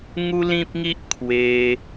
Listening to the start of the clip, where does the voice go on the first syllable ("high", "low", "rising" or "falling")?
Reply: high